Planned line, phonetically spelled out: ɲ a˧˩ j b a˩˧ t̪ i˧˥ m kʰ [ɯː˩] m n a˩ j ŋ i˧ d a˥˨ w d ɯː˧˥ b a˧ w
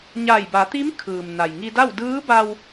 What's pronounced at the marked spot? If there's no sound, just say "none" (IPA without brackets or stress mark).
ɯː˩